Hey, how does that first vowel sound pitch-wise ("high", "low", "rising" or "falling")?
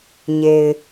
low